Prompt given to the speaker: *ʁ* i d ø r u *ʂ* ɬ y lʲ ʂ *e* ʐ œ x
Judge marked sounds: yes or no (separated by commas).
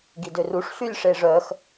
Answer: no, yes, yes